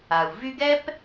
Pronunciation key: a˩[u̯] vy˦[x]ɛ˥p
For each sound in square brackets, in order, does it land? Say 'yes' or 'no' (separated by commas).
yes, no